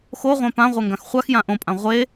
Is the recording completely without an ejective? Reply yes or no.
no